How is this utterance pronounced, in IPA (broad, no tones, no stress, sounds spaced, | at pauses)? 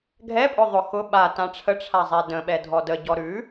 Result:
ɡʱ ɛ pʼ ʊ ðˤ ʊ x ʊ ɓ a t ã ʈ͡ʂʰ ə ʈ͡ʂʰ a zˤ ɛ d ə̃ ɓ ɛ dʱ ɔ d ə ɟ ɔ ɾ ʉ